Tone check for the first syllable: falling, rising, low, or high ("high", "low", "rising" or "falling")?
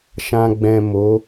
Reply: low